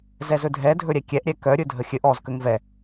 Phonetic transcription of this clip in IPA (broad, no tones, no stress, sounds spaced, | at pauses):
z ɛ z ɵ dʱ ɛ dʱ ɵ ɾʲ ɛ kʲ ɛ ʔ ɾʲ ɛ k œ ɾʲ ɵ dʱ ə xʲ ɘ ʔ ɔ z k ə ŋ v ɛ